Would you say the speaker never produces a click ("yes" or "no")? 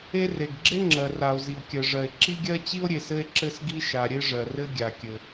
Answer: no